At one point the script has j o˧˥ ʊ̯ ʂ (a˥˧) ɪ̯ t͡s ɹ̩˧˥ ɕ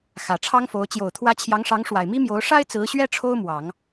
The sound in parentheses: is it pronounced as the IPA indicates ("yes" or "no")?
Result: no